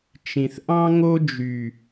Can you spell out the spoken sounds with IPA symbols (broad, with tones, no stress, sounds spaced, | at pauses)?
t͡ʃ ĩ˨ θ ʔ ɑ̃˦ ŋ o˦ d͡ʒ y˨